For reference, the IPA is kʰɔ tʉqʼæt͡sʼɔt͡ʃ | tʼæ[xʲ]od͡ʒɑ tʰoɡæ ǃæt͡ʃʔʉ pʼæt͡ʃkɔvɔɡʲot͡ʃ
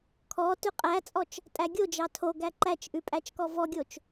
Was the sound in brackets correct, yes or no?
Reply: no